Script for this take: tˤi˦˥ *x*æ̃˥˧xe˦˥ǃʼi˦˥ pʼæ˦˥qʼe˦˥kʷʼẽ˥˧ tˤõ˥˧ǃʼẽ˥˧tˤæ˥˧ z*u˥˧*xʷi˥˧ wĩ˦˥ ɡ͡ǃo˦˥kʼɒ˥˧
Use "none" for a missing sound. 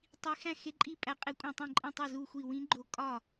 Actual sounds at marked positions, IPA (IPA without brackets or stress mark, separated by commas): x, u˥˧